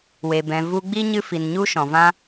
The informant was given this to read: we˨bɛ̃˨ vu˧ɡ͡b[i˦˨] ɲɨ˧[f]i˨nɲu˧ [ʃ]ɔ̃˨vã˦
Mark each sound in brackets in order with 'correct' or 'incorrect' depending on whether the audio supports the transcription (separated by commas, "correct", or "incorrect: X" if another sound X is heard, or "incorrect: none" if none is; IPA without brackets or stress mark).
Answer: incorrect: i˦, correct, correct